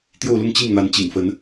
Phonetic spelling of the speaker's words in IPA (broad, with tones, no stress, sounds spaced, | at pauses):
t̪ j o˥˧ ʊ̯ l ʊ˥˧ ŋ t͡ɕ i˥˩ ŋ n̪ a˧˥ n t͡ɕ ḭ˨˩ ŋ f ə˧˥ n